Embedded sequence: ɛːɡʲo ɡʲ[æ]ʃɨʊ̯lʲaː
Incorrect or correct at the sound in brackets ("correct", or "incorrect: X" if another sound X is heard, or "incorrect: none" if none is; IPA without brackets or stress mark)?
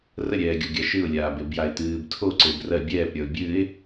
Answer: incorrect: a